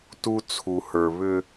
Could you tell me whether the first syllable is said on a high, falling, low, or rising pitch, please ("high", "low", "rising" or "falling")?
high